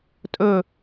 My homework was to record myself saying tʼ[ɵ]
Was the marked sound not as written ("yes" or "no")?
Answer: no